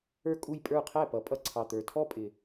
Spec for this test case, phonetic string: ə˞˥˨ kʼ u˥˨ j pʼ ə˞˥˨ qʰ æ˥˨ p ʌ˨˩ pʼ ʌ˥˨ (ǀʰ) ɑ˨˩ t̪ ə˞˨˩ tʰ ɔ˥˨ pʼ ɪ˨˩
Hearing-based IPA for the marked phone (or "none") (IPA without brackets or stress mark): ǀʰ